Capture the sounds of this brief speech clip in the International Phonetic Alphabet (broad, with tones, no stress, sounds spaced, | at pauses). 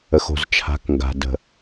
ə˨ x o̤˨ z t͡ʃʰ a̤˨˦ k ŋ ɡ a̤˨ d ə̤˨